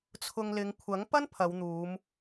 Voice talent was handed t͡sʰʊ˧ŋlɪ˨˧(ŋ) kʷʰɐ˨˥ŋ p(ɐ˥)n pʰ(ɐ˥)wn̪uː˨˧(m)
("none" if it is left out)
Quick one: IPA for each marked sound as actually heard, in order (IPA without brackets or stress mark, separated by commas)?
ŋ, ɐ˥, ɐ˨˧, m